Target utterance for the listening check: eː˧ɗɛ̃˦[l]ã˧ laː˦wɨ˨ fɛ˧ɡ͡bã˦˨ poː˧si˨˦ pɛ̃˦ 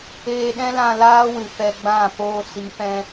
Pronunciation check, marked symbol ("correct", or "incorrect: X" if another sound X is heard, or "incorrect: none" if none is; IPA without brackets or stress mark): correct